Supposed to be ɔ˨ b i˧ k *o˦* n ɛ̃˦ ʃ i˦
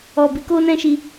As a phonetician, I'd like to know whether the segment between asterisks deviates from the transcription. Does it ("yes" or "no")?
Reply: no